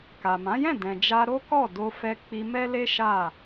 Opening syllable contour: low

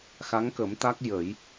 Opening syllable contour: rising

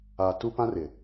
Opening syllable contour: low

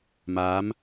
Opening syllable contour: rising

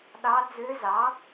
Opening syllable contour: rising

